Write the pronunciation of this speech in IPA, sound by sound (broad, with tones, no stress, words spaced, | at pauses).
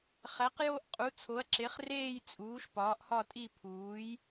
χæ˨˥qjo˥˧ʔqʼu˨˥ t͡sʰo˨˥ɐ̯ǁe˨˥χreː˥˧j t͡sʼuː˨˥ʃpɒː˨˥ʔhɒ˥˧tʼi˥˧ pʰuː˨˥j